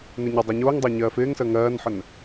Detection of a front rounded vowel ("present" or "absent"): absent